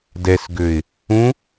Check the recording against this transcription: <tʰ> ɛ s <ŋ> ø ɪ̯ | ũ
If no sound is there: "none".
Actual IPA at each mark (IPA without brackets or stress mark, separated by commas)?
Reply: d, ɡ